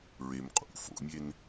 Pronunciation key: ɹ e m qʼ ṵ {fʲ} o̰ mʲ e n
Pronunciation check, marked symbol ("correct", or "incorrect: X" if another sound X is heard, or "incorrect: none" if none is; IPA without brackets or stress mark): incorrect: f